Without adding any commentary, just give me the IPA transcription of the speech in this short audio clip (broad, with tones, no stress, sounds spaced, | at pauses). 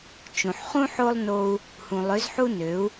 t͡ʃ ũ˨ ħ χ ũ˦ ħ o˦ lˠ n o˧ u̯ | h ũ˨ lˠ ø˨˦ z ħ u˦ n ø˨˦ u̯